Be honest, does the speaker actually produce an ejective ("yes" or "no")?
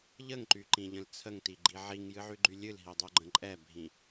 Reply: yes